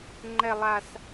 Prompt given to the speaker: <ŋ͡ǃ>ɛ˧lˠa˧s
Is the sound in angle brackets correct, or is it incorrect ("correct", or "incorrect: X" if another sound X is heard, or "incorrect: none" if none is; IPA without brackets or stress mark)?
correct